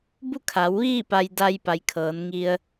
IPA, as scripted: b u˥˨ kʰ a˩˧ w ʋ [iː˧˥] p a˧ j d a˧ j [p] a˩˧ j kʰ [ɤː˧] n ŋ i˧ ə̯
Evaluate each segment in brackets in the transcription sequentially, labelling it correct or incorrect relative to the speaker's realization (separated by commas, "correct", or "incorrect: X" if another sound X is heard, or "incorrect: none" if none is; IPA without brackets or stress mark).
incorrect: iː˥˨, correct, incorrect: ɤː˩˧